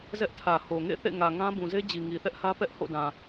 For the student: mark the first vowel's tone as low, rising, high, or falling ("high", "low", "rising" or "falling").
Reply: high